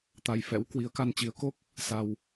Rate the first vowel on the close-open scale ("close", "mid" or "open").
open